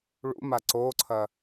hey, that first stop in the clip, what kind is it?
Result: click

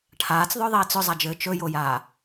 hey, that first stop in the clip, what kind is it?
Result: aspirated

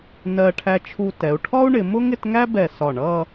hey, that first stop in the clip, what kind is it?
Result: aspirated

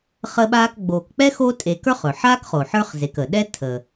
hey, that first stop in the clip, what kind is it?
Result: implosive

